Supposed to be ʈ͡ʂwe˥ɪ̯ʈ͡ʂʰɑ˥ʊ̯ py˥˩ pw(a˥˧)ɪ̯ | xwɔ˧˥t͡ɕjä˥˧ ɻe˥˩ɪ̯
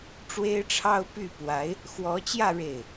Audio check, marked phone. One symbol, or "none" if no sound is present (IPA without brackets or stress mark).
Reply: a˧˥